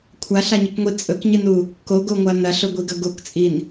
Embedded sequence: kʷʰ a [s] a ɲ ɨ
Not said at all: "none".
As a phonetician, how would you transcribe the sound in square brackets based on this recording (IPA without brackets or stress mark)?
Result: ɬ